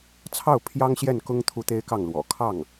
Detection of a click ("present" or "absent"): absent